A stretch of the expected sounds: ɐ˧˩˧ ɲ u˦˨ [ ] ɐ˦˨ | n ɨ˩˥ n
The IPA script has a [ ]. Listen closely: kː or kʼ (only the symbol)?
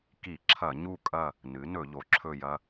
kʼ